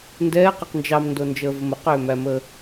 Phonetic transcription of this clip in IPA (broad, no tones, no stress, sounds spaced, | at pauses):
n d ɛː q ɛ q n d͡ʒ ɑ m n d o n d͡ʒ əː v ə m ə q ʏː m æ m əː